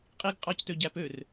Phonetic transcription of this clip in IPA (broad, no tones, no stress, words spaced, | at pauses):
qʼiɡ qʼɑctø ɟæpør